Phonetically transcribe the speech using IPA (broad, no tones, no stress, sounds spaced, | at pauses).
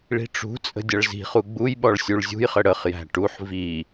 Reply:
ɭ i̤ ʈ͡ʂ ṳ t͡sʼ ə̤ dʲ ʌ ɭ z i̤ χ u ɡ͡b u j ɓ ɔ ɭ sʲ u ɭ zʲ ṳ j χ ə ɽ ə χ j æ̤ ʈ u ħ v i